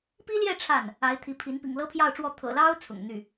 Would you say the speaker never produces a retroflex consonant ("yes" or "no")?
no